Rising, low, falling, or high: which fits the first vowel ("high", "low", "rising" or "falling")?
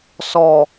low